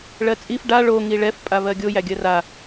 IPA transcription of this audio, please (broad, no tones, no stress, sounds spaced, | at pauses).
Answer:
ɭ ɜ t͡sʼ i f ɖ a ɭ o ŋ i ɭ ɛ f pʼ a β ɜ ɡʲ o j æ ɡʲ ɜ r a